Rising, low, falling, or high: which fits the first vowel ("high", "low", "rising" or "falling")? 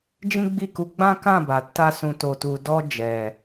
high